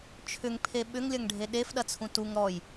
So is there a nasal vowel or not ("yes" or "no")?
yes